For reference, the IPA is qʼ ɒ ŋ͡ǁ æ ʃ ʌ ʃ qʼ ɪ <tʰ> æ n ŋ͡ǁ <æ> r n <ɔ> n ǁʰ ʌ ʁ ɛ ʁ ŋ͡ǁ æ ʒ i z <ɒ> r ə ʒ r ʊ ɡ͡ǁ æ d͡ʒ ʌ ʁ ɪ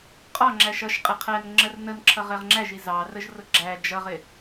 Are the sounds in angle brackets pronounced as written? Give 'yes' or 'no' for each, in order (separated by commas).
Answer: no, no, no, no